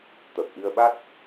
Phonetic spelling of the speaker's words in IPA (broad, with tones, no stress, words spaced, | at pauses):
t̪ə˨˩p̚ʔi˧ə̯ɓa˦˥t̚